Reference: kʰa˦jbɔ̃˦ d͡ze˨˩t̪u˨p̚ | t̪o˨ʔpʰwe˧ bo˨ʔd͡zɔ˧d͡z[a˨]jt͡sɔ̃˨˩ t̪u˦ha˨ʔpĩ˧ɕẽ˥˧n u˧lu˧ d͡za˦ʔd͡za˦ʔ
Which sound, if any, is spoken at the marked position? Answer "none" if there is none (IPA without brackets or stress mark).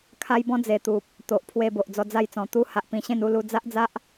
a˥˧